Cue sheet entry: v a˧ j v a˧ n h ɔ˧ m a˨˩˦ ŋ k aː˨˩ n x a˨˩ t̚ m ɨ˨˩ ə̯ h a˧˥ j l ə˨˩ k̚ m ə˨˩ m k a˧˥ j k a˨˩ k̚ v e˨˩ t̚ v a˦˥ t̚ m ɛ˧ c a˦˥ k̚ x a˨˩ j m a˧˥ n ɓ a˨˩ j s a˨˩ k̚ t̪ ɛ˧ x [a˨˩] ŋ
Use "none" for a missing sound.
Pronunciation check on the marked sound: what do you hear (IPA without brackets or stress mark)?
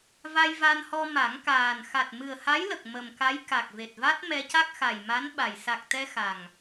a˨˩